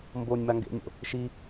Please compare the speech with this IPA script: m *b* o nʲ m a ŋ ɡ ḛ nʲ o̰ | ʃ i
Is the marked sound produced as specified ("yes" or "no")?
yes